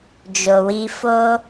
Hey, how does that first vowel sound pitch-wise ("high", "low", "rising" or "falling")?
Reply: low